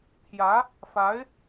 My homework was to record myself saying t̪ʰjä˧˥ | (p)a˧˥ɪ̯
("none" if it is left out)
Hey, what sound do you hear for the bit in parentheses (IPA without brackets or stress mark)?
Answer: f